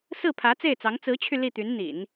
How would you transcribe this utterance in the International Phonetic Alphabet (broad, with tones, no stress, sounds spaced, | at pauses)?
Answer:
s ɹ̩˥˩ pʰ ä˧˥ t͡s e˥˩ ɪ̯ t͡s ɑ˧˥ ŋ t͡s ɹ̩˧˥ t͡ɕʰ y˧ l i˥˩ t̪ y˧˥ n n̪ ḭ˨˩˦ n